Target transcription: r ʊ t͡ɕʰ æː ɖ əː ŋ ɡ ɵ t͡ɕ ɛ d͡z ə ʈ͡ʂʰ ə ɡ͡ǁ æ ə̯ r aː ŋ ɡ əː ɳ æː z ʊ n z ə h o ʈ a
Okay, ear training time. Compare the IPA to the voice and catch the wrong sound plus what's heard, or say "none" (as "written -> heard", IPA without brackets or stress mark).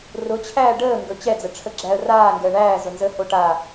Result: none